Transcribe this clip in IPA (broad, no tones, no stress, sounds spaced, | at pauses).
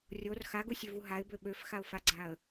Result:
rʲ o r x a ɡ u sʲ ø v u ɦ a ɪ̯ b ø ɓ ø f x a ʊ̯ f a ɡ͡ǀ a ə̯